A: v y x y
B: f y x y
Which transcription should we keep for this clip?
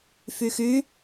B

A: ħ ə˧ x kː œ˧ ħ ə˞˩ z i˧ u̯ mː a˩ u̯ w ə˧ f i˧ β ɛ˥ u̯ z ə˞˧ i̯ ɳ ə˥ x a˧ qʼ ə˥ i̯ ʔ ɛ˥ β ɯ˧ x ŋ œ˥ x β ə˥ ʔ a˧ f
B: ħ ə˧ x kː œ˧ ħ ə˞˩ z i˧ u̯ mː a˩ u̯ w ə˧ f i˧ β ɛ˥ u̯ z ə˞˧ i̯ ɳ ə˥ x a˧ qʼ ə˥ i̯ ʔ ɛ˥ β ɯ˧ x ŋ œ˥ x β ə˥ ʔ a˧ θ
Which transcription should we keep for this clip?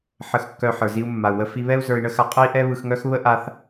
B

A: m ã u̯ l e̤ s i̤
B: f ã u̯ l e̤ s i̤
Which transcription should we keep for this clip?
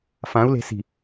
B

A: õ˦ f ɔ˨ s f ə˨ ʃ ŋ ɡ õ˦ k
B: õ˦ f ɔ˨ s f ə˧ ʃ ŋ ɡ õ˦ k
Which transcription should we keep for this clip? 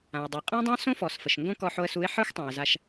A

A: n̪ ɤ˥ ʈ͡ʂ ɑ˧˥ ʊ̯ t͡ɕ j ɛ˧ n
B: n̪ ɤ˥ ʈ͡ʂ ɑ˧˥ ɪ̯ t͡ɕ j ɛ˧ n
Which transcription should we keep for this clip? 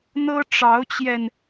A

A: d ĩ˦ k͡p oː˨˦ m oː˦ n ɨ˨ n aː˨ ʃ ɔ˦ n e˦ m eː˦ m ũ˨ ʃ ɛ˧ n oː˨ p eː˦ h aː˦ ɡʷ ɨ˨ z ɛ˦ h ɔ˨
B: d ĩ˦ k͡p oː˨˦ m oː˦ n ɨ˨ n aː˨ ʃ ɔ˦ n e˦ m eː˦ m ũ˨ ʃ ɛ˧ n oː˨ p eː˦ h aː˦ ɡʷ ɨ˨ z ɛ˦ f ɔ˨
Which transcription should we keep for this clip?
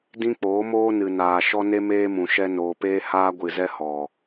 A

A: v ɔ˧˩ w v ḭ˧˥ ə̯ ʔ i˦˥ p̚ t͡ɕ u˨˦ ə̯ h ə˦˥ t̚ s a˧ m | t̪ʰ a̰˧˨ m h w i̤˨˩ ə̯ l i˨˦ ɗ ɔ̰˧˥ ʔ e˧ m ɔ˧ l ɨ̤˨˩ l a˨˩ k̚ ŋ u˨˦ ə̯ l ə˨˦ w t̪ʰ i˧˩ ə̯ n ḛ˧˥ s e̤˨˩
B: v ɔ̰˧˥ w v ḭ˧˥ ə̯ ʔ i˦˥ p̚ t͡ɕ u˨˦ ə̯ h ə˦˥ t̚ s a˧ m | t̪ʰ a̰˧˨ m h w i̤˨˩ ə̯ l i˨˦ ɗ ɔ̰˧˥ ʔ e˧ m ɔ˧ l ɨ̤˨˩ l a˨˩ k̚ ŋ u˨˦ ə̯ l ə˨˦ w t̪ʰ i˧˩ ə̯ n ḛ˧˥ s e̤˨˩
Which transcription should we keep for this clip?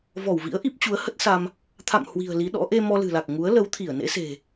A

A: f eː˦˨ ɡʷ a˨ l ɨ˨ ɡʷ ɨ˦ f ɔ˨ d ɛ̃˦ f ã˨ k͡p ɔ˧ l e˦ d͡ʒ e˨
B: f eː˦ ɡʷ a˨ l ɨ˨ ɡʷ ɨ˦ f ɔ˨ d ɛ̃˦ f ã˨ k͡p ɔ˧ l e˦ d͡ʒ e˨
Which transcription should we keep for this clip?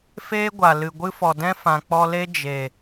B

